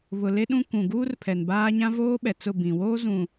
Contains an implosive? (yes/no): yes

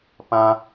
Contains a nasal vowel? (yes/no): yes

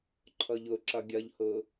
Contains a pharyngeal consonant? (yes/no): no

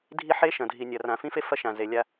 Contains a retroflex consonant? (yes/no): no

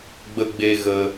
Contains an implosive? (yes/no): no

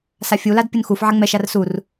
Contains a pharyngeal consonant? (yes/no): yes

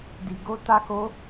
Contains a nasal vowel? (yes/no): no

